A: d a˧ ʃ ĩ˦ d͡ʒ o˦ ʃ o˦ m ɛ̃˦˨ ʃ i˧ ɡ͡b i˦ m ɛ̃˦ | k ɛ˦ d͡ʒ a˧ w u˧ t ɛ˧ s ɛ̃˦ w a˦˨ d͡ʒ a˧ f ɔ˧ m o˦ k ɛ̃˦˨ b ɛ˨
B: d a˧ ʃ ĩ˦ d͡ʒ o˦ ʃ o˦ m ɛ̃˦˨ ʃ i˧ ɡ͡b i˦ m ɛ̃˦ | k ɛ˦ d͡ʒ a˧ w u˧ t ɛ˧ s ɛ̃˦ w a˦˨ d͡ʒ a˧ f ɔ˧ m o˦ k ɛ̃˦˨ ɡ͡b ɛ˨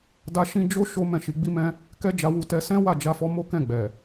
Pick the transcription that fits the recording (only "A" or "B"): B